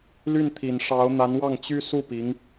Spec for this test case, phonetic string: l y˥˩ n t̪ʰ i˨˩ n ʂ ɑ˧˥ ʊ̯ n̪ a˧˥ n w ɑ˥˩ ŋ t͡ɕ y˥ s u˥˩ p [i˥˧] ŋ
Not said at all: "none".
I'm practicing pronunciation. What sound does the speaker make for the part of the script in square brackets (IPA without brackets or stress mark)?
i˧˥